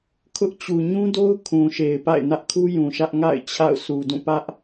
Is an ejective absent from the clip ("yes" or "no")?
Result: yes